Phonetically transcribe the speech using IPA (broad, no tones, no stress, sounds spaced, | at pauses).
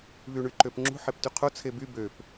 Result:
β y ɳ y ǃ ø p ŋ͡ǁ ṳ ħ e p t y qʰ o t͡sʰ e b y b ø p